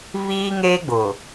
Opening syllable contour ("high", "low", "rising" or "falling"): high